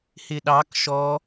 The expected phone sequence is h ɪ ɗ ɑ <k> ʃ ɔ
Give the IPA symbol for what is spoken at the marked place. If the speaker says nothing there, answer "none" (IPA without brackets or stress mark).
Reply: k